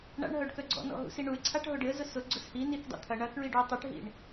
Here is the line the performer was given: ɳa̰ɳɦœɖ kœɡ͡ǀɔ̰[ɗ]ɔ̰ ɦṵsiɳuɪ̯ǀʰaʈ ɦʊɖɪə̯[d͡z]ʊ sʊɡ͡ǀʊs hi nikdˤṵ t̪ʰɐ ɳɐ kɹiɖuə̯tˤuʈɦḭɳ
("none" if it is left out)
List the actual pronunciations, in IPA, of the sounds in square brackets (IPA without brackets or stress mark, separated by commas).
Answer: n, z